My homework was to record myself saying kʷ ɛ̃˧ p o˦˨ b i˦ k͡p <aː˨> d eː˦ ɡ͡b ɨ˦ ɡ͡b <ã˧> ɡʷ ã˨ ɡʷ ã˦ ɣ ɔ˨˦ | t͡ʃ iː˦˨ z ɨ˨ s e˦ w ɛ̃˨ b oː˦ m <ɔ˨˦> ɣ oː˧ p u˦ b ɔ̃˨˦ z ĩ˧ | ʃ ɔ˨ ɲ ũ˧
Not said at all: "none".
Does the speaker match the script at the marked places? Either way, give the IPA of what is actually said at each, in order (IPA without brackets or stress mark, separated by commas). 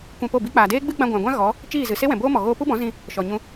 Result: aː˨, ã˧, ɔ˨